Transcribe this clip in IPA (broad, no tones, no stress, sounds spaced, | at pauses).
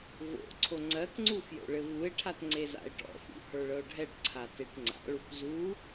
v o̰ ǀʰ o ŋ͡ǀ ɜ k ŋ͡ǀ u f j o̰ ɭ ɘ v u e̯ ʈʰ a t ŋ͡ǀ e z a̰ e̯ ʈ ɔ̰ f ṵ h ə˞ ɭ ɤ o̯ ɖʱ ɛ ʈ ǀʰ a t e ʈ ŋ͡ǀ a̰ ɭ u k z u